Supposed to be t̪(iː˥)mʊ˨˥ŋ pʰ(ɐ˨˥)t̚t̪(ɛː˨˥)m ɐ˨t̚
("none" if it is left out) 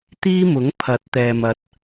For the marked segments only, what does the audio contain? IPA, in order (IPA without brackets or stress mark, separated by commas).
iː˥, ɐ˨˥, ɛː˨